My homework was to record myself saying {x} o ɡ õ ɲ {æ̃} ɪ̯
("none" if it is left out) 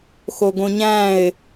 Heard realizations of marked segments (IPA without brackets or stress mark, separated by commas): x, æ̃